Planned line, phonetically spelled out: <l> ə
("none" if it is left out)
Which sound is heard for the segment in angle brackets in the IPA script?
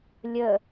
lʲ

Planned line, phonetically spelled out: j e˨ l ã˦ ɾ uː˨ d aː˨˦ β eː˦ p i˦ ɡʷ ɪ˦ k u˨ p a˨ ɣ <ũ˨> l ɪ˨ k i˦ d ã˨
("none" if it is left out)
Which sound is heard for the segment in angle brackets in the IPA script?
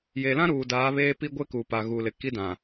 u˨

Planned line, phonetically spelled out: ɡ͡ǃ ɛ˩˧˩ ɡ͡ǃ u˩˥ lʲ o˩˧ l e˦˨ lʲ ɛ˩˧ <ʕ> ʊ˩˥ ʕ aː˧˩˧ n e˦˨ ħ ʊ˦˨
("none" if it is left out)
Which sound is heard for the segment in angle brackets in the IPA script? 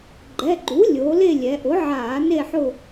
ʔ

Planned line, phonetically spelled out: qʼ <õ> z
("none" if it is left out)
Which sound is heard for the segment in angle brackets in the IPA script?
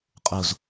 o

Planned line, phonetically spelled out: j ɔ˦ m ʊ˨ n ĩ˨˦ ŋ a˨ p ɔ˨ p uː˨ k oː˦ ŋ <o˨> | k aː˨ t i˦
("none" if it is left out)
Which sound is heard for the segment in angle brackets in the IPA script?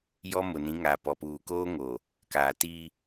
o˨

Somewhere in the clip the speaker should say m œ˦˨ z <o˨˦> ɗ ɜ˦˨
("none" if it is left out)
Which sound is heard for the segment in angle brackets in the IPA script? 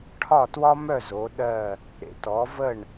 o˨˦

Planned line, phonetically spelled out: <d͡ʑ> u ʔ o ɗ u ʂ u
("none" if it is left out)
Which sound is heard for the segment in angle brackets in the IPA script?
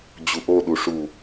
d͡ʑ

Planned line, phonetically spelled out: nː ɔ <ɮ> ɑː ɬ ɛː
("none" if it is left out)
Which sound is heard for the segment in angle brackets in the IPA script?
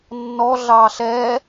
ɮ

